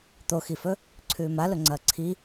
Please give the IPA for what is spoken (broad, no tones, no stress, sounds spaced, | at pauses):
t̪ o x i f ɵ | ǀʰ ʉː m a l ɵ ŋ͡ǀ ɐː ǀʰ i